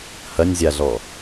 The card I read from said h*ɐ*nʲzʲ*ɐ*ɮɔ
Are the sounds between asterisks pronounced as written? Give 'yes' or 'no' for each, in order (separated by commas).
yes, no